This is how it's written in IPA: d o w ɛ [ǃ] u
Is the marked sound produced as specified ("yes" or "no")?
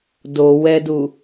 no